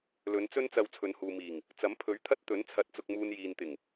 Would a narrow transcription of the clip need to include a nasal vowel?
no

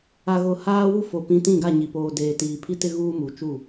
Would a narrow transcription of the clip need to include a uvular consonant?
no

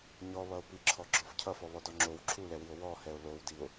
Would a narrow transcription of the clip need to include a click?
yes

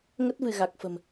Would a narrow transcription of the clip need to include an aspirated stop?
no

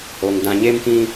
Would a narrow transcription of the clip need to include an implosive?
no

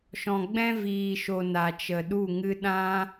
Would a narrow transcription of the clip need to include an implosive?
yes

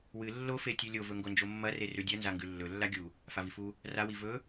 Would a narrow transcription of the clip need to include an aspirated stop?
no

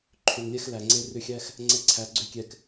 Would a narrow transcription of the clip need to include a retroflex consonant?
no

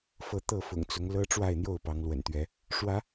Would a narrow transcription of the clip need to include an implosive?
no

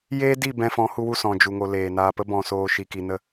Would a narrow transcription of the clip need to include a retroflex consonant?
no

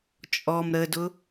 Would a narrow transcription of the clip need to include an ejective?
yes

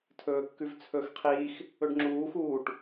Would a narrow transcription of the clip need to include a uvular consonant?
yes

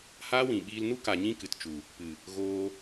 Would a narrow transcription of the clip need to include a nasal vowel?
yes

